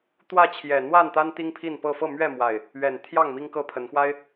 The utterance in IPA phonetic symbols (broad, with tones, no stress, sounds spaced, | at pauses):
t̪ w ä˥˨ t͡ɕʰ j ɛ˨˩ n̪ w a˥˨ n t̪ a˦ n t̪ i˦ ŋ pʰ i˥˨ n p ɤ˥˨ f ɤ˥˨ m ɥ ɛ˥˨ m w a˨˩ ɪ̯ | ɥ ɛ˨˩ n t̪ʰ j ɑ˥˨ ŋ m i˦ ŋ k ɤ˦ pʰ ə˨˦ n x w a˦ ɪ̯